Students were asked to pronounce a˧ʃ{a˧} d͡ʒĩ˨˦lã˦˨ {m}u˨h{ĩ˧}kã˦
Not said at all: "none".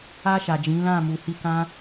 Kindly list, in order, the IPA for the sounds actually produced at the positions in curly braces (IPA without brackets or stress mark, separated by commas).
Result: a˨, m, i˧